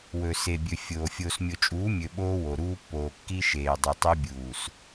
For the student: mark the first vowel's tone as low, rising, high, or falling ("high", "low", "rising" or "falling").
low